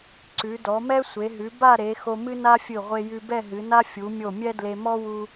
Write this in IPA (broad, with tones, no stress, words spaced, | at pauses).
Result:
ǀʉ˩˧dɔ˩˧mɛ˥ sʷe˩˧ɦʉ˩˧ba˥˧ɾe˩˧ xo˧mɨ˥na˥fʲɨ˧˩ ʁʷe˧jʉ˧bɛ˥˧ ɦɨ˩˧na˥ fʲu˩˧mʲo˧˩ mʲɛ˥dle˧mɔ˥wu˧